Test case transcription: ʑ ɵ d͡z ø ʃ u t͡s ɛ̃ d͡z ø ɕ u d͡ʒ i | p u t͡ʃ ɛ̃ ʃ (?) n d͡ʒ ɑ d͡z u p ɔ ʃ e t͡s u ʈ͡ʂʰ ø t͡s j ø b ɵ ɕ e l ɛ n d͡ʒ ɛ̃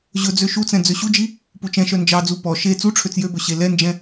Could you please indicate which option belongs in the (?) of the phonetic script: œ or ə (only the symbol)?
œ